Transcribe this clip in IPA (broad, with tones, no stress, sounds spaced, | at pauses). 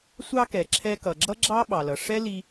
sʷ ɑ˧ k ɛ˩ ǁʰ ɛ˧ k ʌ˩ ɡ͡ǁ ʌ˥ ɡ͡ǁ ɑ˥ ɓ ɑ˩ l ʌ˩ ʂ ɛ˥ l i˧